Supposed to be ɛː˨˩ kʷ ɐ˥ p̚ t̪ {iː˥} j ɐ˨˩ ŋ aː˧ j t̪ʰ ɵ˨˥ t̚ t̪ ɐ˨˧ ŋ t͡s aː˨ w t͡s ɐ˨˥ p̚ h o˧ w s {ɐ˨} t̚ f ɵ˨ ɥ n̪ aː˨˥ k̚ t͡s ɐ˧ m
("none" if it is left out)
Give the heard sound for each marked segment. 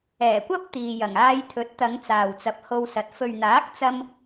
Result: iː˨, ɐ˨

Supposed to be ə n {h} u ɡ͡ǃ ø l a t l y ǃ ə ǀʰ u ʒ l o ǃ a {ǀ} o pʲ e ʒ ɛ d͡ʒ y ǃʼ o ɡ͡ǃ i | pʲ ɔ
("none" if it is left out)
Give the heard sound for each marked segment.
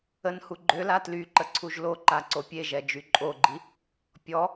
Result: h, ǀ

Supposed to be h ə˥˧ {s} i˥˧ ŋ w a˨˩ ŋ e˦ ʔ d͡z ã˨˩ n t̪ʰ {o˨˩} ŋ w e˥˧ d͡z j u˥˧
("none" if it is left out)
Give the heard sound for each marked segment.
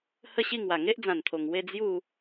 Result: ɕ, o˨˩

